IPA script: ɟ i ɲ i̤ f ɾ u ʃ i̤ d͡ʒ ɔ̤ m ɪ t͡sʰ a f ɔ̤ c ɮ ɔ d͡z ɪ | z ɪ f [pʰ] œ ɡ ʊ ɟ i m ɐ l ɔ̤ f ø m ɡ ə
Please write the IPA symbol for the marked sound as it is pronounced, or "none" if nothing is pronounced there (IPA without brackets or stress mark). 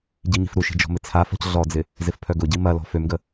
pʰ